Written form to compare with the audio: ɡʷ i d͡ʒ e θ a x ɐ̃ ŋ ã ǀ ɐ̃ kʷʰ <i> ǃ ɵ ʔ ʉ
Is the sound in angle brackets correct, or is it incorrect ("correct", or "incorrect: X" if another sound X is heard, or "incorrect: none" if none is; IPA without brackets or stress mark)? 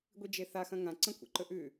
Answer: incorrect: ḭ